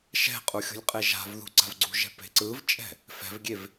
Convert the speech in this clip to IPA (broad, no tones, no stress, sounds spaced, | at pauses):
ʃ ɛ̤ qʼ u xʲ ṳ lʲ qʼ e ʒ a̤ v ð ṳ ǀ a̤ v ɡ͡ǀ ṳ ʒ ɛ̤ p e̤ ǀ ɯ v t͡ʃʼ ɛ̤ | f ɛ̤ v ɡʲ e v